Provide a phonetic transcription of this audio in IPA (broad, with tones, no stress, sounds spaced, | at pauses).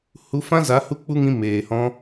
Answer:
h u˧ f ã˦ z a˨˦ h u˦ k͡p u˦ ŋ ĩ˧ m eː˨ h ɔ̃˧